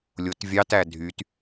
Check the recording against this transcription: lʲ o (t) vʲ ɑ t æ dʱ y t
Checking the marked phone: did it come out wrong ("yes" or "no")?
no